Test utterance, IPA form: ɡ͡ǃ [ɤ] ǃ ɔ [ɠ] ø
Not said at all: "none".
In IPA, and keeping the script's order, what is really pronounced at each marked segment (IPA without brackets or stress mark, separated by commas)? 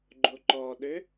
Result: o, ɗ